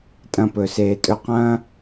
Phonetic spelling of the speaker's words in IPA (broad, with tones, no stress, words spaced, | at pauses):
tʼɐ̃˧pɵ˨seː˨tʼɵ˧ qɐ̃ː˦